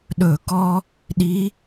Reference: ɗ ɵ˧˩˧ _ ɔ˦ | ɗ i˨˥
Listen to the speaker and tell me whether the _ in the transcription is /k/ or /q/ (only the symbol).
k